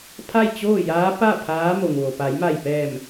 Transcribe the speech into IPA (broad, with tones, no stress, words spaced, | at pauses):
pʰa˥˨jt͡ɕoː˥˨jaː˧˥ pa˥˨ pʰaː˧˥mo˩ŋʋo˩ pa˩˧jma˧˩jpɛː˧˩m